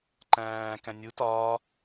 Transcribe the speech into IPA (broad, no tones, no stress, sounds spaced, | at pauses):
ǃ æ̃ː k æ̃ nʲ u t ɒː